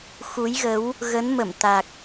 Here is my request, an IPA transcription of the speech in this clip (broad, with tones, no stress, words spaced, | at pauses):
xu˨˦jɣə˨˦w | ɣə˨˦n mə˧˩mt̪a˨˩k̚